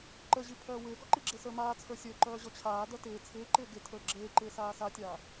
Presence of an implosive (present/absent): absent